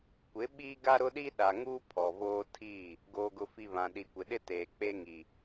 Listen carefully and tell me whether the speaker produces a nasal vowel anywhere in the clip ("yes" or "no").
yes